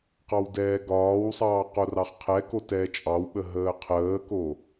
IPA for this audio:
q ɑ w d ɛː ɡ ɒː w sˤ ɑː q o r ɑ χ qʰ ɛ k o t ɛː t͡ʃʼ ɑ w ɓ ə ɦ əː qʰ əː k o

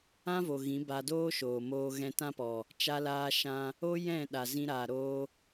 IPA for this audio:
ã˦ v o˨ ɣ ĩ˨˦ b a˧ d oː˦ ʃ oː˨ m oː˧ ɣ ɛ̃˧ t ã˦ p ɔ˨ | t͡ʃ a˧ l aː˧ ʃ ã˧ | o˦ j ɛ̃˦˨ ɗ a˨ z ĩ˧ ɾ aː˨ ɾ oː˧

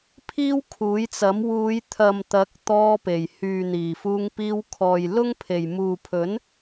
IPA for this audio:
pʰ iː˥ w kʰ uː˨˥ j t͡s ɐ˨˥ m w uː˨˧ j t̪ʰ ɐ˨ m t̪ ɐ˨˥ k̚ t̪ ɔː˧ p e˨˩ j h yː˨ n̪ iː˨˩ f uː˧ ŋ p iː˧ w kʰ ɔː˨ j l ʊ˥ ŋ pʰ e˨ j m uː˨ pʰ ɵ˨˥ n

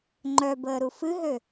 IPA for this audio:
ŋ͡ǃ œ b əː ɾ u f ɨ ɦ ø

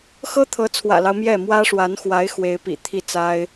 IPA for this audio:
x ɤ˥ t̪ʰ ɤ˧˥ t͡sʰ w ä̰˨˩ l ɑ˦ ʊ̯ m j ɛ˥˩ m w ä˥ ʂ w a˧˥ n x w a˧˥ ɪ̯ x w e˧˥ ɪ̯ p ḭ˨˩ t̪ʰ i˥˩ t͡s a˥ ɪ̯

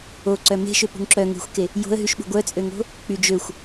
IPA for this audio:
o ǀ œ m e̤ ʃ ø p ṳ ŋ ǁ œ ŋ e̤ xʷ k e | j o̤ ə̯ ɦ y ʃ ɓ ṳ ɡʷ œ t͡sʼ ø ŋ o̤ | k͡p y d͡ʒ ø xʷ

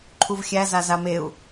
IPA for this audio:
ǃʰ u v xʲ æ z a z a m e u̯

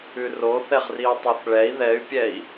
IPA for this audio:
ʉ r o θ ɛ ʁ r i u̯ tˤ o θ ɭ ɛ i̯ ð ɛ y̯ pʲ ɛ i̯

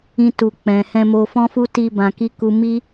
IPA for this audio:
ĩ˧ t u˨ k͡p ɛ̃˨ h ɛ̃˧ m o˧ f ɔ̃˦ f u˦ t i˧ b ã˨ k i˧ k u˨ m i˧

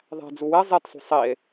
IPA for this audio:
ðˤ æ̤ d͡z u w e zˤ e t sˤ ṳ sˤ i e̯

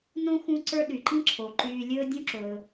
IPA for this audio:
n õ˥ x ũ˥ ǀ ə˞˥ ɗ y˩ ǃ ĩ˥ ǁʰ o˩ ǃ yː˨ lʲ ɵː˥ dʲ ũ˥ ǁ ɵː˩

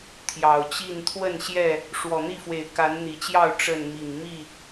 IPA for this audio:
t̪ʰ j ɑ˨˩ ʊ̯ t͡ɕ i˥˨ n t̪ʰ w ə˥˨ n ɕ j ɛ˥˨ | ʂ w ɔ˨˩ n̪ i˥˨ f w e˨˩ ɪ̯ k a˨˦ n n̪ i˨˩ t͡ɕ j ɑ˥˨ ʊ̯ ʈ͡ʂ ə˥˨ n m i˨˩ ŋ m i˥˨

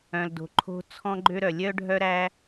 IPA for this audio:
œ̃˨ l d o̤˨ ǃʰ o̤˦ t͡sʰ ɔ̃˦ ɡ͡ǃ ø˦ ɾ œ˨ lʲ œ˦ ɖʱ œ˦ ɾ æ˦

